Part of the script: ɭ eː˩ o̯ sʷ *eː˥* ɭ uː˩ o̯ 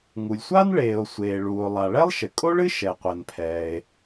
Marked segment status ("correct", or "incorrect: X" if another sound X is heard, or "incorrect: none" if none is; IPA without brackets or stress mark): incorrect: eː˩